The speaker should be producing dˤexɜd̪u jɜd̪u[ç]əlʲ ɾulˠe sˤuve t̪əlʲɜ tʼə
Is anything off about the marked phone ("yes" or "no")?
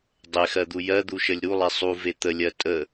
yes